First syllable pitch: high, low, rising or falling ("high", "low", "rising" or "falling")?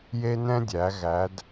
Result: high